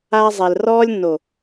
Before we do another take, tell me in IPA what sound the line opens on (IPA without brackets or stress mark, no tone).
aː